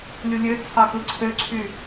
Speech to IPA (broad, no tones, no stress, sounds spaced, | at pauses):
lʲ u lʲ ø t͡sʰ ɑ k ɯ ǀʰ ø ǀʰ y